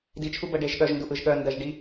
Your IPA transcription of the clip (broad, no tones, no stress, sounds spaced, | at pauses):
d i t͡ʃʰ u b ə ɖ e ʒ ɠ œ ʒ n d u ʔ ɯ ʒ ɠ œ n d ɜ ʒ ɖ i